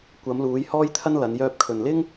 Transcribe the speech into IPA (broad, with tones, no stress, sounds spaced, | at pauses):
kʷ ɐ˨˧ m l uː˨˧ j h ɔː˥ j t̪ʰ ɐ˥ n l ɐ˨˧ n j œː˧ p̚ kʰ ɵ˨ n l ɪ˥ ŋ